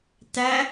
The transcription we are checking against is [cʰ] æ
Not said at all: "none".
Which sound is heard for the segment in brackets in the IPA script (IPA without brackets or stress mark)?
t